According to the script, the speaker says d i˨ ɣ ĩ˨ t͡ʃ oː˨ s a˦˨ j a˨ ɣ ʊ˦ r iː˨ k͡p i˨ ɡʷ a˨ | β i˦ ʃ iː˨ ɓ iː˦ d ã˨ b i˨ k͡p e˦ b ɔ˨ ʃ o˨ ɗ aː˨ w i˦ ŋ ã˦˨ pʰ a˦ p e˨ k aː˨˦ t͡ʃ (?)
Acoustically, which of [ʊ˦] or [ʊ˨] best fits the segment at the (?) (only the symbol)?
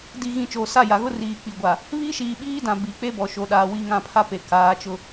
ʊ˦